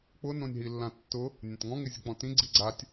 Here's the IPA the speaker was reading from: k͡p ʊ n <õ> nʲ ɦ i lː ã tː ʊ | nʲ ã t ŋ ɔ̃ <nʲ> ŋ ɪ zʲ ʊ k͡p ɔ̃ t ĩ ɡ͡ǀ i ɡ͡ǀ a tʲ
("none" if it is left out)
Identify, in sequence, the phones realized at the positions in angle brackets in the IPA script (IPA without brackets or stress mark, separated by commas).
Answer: õ, none